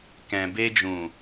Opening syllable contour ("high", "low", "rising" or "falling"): low